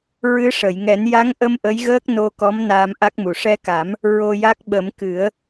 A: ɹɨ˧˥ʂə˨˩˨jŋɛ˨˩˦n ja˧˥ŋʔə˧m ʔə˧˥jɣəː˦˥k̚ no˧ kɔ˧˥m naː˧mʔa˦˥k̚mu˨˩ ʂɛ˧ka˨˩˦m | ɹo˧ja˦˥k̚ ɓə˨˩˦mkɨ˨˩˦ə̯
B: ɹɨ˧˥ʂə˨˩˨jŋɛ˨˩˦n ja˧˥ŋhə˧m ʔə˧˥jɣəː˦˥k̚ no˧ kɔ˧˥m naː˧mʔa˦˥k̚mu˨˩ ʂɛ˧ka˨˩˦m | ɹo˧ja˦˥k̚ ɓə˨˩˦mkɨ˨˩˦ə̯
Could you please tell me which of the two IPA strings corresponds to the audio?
A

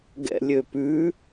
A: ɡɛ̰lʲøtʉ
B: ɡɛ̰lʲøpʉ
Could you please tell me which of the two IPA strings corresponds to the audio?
B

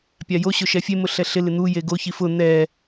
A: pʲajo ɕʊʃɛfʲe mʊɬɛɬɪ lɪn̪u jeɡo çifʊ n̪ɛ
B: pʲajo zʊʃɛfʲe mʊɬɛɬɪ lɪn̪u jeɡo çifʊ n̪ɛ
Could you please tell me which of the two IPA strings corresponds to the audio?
A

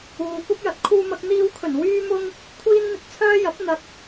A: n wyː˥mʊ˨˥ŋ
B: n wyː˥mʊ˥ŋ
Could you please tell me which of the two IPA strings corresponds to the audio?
B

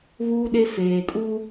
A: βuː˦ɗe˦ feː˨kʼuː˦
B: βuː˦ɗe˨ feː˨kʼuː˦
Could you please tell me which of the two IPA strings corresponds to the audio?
A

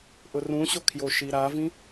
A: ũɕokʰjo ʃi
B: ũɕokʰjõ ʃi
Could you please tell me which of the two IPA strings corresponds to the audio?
A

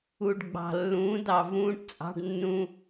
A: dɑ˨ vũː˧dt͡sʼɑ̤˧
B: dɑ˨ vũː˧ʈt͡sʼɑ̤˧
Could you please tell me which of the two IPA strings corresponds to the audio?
B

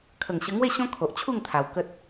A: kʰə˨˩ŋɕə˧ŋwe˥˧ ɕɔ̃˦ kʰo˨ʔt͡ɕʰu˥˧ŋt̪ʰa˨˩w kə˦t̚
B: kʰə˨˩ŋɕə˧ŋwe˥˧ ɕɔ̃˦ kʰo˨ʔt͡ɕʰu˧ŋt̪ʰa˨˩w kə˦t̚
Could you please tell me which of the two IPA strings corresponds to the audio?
A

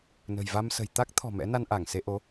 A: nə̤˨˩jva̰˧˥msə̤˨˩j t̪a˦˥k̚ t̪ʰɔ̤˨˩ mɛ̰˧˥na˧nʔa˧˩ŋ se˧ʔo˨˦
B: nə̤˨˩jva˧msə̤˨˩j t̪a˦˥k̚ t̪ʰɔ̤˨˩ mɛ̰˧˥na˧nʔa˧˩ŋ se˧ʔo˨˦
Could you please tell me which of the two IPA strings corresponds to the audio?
B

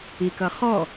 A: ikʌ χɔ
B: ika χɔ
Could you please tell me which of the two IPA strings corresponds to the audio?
A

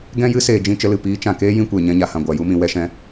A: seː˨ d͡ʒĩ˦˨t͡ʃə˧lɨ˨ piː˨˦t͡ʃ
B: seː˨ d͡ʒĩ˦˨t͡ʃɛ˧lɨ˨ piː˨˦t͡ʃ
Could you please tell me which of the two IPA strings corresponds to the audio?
A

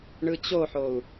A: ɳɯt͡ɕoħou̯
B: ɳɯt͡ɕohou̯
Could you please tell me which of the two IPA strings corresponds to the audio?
A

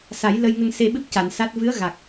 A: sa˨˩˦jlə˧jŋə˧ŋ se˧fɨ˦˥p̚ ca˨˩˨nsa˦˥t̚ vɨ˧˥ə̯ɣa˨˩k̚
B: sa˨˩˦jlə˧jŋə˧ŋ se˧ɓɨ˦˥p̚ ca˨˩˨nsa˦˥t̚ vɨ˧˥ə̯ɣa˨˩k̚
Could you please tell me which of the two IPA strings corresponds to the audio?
B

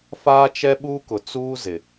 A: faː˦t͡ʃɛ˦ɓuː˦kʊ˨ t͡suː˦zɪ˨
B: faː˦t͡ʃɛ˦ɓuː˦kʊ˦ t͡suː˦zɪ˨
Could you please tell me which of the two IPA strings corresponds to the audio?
A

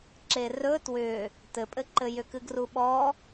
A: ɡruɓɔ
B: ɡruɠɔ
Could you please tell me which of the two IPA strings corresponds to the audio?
A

